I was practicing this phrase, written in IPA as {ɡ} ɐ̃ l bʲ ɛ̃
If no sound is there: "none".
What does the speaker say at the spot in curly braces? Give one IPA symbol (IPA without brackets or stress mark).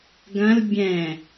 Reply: ɡ